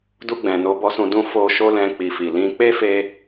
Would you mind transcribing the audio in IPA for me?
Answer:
du˧ɡ͡bɛ̃˨ no˧bɔ˦sũ˧dũ˦ fo˧ʃo˦lɛ̃˧ k͡pi˨fi˨lĩ˧ k͡pe˦fe˧

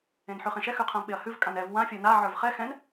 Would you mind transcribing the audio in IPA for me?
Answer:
ẽnħʉχẽʃɛ xʉqʰãvɓeɐ̯hʉv kʼãnɛv wã fʲə˞na ʕə˞vχɛ xɛ̃n

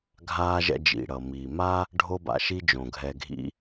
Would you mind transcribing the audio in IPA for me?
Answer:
ɡʱaː˧ʒɛ̰˧d͡ʒḭ˩ ɽʌ˩miː˩ma˥ | ɖʱo˧ba̰˩ʃi˧ d͡ʒõ˩ɡʱɛ˧ɡʱḭ˥

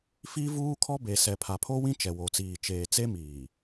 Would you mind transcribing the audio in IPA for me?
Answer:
fi˦vuː˦kʰɔ˦be˨ sɛ˨pʰa˨pʰo˦wĩ˦ t͡ʃɛ˨wo˨t͡siː˨ t͡ʃeː˨t͡se˦miː˨

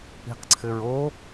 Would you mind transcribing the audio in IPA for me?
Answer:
i̤qǀʰɘɹo

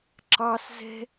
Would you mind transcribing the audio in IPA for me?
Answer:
ǁɑs zɛ̤

